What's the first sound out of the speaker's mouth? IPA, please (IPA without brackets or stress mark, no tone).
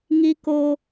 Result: ŋ